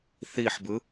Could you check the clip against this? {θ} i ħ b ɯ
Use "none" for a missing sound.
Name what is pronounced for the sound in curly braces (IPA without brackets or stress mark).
θ